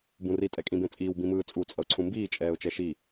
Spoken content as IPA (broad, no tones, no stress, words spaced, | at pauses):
bũri tʼɛkʼĩbẽt͡sʼiːw bĩmɯːt͡sʼu t͡sʼʌʊ̯ǀʰũmbiː t͡ʃʼɛːʊ̯t͡ʃɛʃi